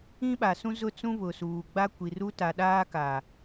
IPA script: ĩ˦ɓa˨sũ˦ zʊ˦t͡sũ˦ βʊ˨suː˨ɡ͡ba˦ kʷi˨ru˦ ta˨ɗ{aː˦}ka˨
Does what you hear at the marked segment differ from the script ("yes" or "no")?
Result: no